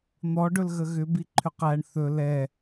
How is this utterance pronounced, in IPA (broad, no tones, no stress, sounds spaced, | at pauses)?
n̪ ɔ ɖ ɵ l ɣ ə ɣ ʏ b i ǃʰ ʏ q æ ɳ θ ɵ l ɛ